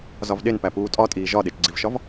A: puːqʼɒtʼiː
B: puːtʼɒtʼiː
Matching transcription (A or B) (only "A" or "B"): B